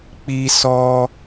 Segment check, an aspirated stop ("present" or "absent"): absent